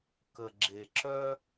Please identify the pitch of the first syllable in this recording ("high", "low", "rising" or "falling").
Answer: low